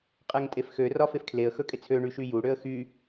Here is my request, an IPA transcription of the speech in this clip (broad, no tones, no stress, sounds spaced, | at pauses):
qʼ ɛ ŋ tʼ e f x ø r ɒ f e f kʰ l e ə̯ x ɵ kʼ e t͡sʰ ø ɳ y ʃ y j u ɽ ø ə̯ x y